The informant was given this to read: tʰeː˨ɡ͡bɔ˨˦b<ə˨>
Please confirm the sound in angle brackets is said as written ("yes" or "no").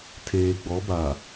no